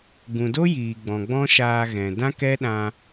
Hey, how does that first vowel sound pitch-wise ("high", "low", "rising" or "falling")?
low